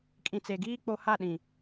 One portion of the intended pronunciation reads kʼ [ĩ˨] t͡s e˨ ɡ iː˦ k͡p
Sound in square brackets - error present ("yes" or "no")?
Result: no